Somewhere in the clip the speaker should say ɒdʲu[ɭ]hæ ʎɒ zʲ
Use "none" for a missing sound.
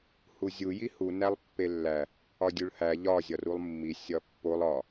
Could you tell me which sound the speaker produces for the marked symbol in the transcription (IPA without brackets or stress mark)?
ɭ